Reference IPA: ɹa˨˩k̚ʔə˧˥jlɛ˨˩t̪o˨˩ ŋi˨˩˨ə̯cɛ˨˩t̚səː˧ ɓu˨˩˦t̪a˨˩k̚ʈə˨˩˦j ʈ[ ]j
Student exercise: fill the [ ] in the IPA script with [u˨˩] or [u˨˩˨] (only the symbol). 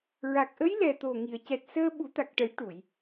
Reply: u˨˩˨